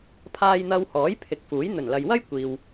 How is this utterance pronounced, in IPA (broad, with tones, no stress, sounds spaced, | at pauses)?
pʰ aː˧ j n̪ ɐ˧ w h ɔː˨˥ j pʰ ɪ˨˥ k̚ f uː˨˥ j n̪ ɵ˨˩ n l ɐ˨ j w ɐ˥ j kʷ iː˨ w